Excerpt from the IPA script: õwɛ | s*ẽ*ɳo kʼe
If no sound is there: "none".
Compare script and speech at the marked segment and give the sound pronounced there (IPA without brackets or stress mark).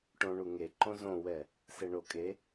e